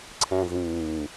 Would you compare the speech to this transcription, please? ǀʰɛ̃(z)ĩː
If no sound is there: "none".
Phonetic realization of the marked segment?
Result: z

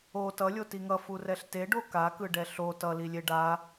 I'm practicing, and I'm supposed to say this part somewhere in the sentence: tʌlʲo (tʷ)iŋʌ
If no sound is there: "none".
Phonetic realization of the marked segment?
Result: t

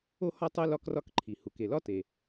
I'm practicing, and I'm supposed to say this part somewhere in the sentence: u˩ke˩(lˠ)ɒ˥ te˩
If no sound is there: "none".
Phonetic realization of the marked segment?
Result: l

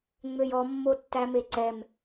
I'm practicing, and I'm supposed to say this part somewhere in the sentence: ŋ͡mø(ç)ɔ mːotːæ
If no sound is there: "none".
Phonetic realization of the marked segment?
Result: j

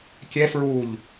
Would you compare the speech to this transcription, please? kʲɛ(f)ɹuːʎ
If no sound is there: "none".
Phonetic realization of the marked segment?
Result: f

